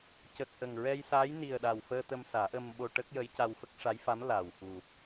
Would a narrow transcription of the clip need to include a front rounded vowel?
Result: no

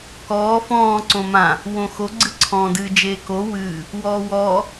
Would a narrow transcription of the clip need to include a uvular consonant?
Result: no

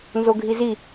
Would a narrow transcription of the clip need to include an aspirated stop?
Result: no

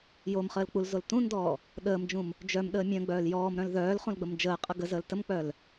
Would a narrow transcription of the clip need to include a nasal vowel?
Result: yes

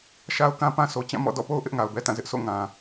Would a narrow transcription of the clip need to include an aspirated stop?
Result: no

